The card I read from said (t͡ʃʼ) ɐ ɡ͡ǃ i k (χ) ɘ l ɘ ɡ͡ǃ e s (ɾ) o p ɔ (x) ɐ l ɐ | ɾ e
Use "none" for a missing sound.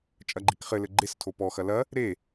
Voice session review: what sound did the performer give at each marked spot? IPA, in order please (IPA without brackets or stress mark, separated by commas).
t͡ʃʼ, χ, tʰ, x